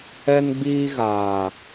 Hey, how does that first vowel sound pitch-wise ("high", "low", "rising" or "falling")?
high